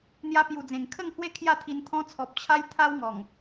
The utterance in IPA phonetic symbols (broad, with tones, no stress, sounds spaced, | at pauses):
n̪ j a˧ p j u˨˩ d͡z ẽ˨˩ ŋ kʰ ə˥˧ ŋ h w e˦ kʰ j a˥˧ t̪ʰ i˧ n t̪ʰ ɔ̃˧ t͡sʰ ɔ˨ p̚ t͡ɕʰ a˦ j t̪ʰ a˦ w ŋ ɔ˨˩ ŋ